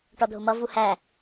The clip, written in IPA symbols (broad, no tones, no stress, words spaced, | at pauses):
ʈɔdʱʊmʌ vuhæ